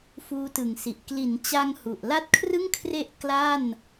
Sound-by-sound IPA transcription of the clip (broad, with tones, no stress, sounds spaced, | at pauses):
f uː˦˥ t ɯ˩˦ ŋ s i˨˩ ʔ k l i˩˦ n t͡ɕ a˧ ŋ h u˨˩ ʔ l a˦˥ t̚ kʰ r ɯ˥˩ ŋ kʰ r e˦˥ ʔ k l a˥˩ n